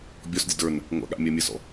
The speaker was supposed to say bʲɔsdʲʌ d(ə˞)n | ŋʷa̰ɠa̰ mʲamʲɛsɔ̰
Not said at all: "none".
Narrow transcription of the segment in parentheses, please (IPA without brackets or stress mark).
ə˞